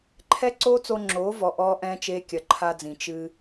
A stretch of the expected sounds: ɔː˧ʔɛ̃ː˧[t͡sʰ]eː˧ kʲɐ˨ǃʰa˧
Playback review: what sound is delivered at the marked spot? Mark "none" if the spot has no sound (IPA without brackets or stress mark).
t͡ʃ